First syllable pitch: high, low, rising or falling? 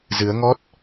rising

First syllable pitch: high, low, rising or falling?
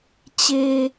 low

